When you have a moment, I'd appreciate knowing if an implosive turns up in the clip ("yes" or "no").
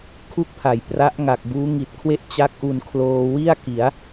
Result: no